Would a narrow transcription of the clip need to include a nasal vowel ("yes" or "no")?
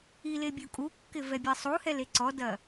no